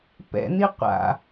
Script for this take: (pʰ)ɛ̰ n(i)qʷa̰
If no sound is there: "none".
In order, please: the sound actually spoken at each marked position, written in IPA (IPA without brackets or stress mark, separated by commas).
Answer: p, i